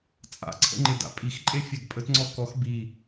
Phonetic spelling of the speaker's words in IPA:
t͡sʼa̰ǀʰə̰ŋ͡ǃɪda̰ pʼixǃʼefʲɛɡ pʼətŋ͡ǀɔ kɔx bi

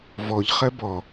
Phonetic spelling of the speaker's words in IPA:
vɔʎ χɜbɔ

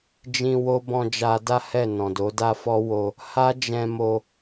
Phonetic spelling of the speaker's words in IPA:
d͡ʒĩ˧ wo˦ bɔ̃˧ d͡ʒa˧da˦ hɛ˦˨ nɔ̃˨ do˨˦da˦fɔ˦ wo˧ | ha˦ d͡ʒɛ̃˧mo˧

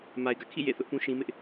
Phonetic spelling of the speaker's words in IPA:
ma˨ɪ̯ɡä̰˦˨kʰḭ˦˨ jḛ˦˨ θʊ˦ʔpũ˦ʃĩ˦mɪ˦ʔ

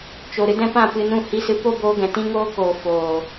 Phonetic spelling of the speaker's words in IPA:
t͡ʃo˨ ɾɨ˧dɛ̃˧ pã˦˨pɨ˧nũ˦˨ hi˦sɨ˧ po˦boː˧ɡɛ̃˨ tĩ˦ŋoː˦koː˨ foː˨

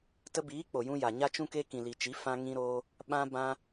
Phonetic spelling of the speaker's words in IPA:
tə˧biː˨˦ k͡po˨jũ˧ja˨ ɲa˧t͡ʃũ˧ke˧ kĩ˨li˨t͡ʃi˨˦ fã˧ŋĩ˧ɾoː˧ | ɓã˧bã˧

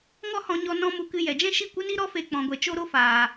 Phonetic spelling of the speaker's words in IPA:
ŋɔ˦hɔ̃˧ɲɔ˧ nɔ̃˦mu˧kɨ˧ jɛ˨d͡ʒɛ̃˦ʃi˦˨ kʷɨ˦ni˦ ɾɔ˦fe˧ k͡pɔ̃˨ɡʷɛ˨ t͡ʃo˦ɾo˦ faː˨

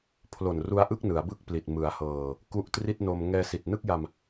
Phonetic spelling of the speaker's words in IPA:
pʰlo˨˩nru˧a̯ʔɯ˥˩k̚ nɯ˩˦a̯bɯ˥˩k̚pli˨˩t̚ mɯ˩˦a̯hɤː˨˩ | ku˦˥ʔtri˥˩t̚no˧m ŋɛː˧si˨˩t̚nɯ˥˩k̚ja˧m

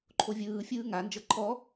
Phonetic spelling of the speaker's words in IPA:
ǃʰovʲɯːfʲɯː ŋand͡ʒɤ ǃʰɔ

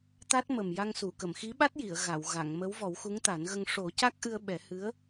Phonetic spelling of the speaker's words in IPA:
t̪a˦˥t̚ mə˨˩mja˧ŋsu˨˩˨ kə˨˩˨mxi˧˥ɓa˦˥t̚ji˨˩˨ə̯ ɣa˨˩˨wɣa˨˩˨ŋmə˧˥w vɔ˨˩˦wxu˧˥ŋt̪a˨˩˦nɣə˧ŋ ʂo˨˩˦ ca˦˥k̚ʔɨ˧ə̯ ɓɛ˨˩˦hɨ˧˥ə̯

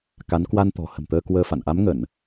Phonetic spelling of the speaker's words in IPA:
ka˨˦n kwa˧nt̪ɔ̤˨˩ hə̤˨˩mt̪əː˧ kwəː˧fa̰˧˨n ʔa˨˦mŋə˧˩˨n

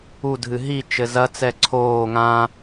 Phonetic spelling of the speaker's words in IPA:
udʱɨ ɦi t͡ʃɘzɐt͡sɛ ǀʰoː ŋã

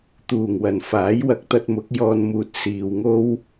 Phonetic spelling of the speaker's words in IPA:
t̪uː˨˩ŋwɐ˨˩n faː˨˥jwɐ˨˥k̚t̪ɐ˧t̚mʊ˨˥k̚ jɔː˨nmuː˨t̚ siː˨wŋo˥w

